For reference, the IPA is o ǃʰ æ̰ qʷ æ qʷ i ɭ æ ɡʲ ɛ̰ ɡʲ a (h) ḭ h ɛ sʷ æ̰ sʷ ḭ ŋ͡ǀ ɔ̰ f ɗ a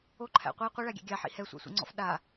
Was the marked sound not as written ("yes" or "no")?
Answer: yes